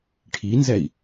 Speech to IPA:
ʈʰ i n z ɛ i̯

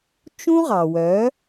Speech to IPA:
t͡ʃ ũ˦ ʁ ɑ˨ w œ˨˦

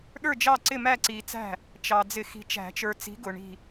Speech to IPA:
ɗ ə˞˥˩ d͡ʒ ɑ˥˩ ǀ ɪ˥˩ m æ˥˩ ǀ i˨ t͡s æ̤˥˩ | t͡ʃ ɑ˨ d͡z ɪ˨˩˦ x i̤˨ t͡ʃ æ̤˨˩˦ t͡ʃ ə˞˨ t͡s i̤˨˥ ɡ ʊ˨ ɳ i̤˥˩

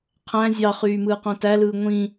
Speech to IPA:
qʰ æ̃ zʲ ɑ χ yː m ɯː q õ t æ l ɯː ŋʷ ĩ

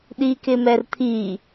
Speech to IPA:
ɗ i k ɪ m ɛ r t̪ʰ i

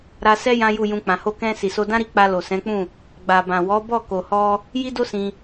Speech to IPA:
ɾ a˧ s ɛ˦ j ã˦ j u˦˨ j ũ˧ k͡p ã˨ h o˧ k ɛ̃˧ s i˨ s o˧ d ã˦ ɾ i˦˨ k͡p a˧ l o˨ s ɛ̃˨˦ k͡p ũ˦˨ | ɡ͡b a˨ b ã˨ w ɔ˨˦ b ɔ˦˨ k o˨ h ɔ˧ | j i˦ d o˦ s ĩ˧

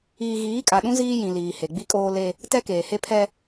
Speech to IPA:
iː˦ ɣ iː˨˦ kʼ a˨ ɗ ũ˦ z iː˦ j ĩ˨ l iː˨ h e˨ ɡ͡b i˦ kʼ oː˦ l e˦ | t ɛ˦ k eː˨ h e˦ pʰ ɛ˦

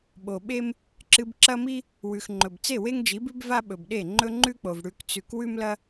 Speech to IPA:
ɓ o˨ ɓ e˦ m | ǁ ɨ˧ b ǁ ɐ˦ m i˦ | w ʉ˨ x ŋ͡ǃ ɵ˨ b t͡s e˦˨ w e˦ ŋ d͡ʒ i˨˦ b ʉ˦ b v a˦ ɓ ɵ˨ b ɗ e˦˨ ŋ͡ǃ ɵ˦ ŋ͡ǃ ʉ˦ k͡p o˨ v ɽ ʉ˧ k t͡s ʉ˧ k w ʉ˦ m l ɐ˦

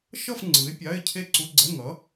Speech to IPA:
ʃ ʌ˥˧ f ŋ͡ǀ ɯ˨˥ ɪ̯ pʲ a˧˥˧ ɪ̯ cʰ e˥˧ ǀ u˧˥˧ ɡ͡ǀ ɛ˧˥˧ ŋ ʌ˨˥

